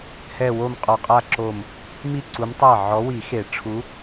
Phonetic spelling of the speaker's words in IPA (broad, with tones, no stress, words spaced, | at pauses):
hɛ˥˧wo˥˧mqʼɔ˧˩ qʼa˥˧ǁo˧˩m | mi˥˩ǀu˨˦m tˤa˥˩ ʕɔ˨˦wi˨˩˦ xe˨˩˦ʈ͡ʂʰu˨˦